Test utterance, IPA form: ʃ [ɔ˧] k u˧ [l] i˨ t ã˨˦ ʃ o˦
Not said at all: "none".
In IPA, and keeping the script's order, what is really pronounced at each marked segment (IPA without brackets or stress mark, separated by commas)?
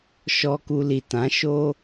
ɔ˧, l